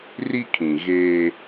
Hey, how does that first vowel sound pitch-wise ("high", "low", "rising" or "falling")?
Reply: high